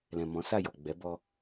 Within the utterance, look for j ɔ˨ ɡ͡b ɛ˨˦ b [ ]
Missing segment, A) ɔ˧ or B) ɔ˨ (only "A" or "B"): A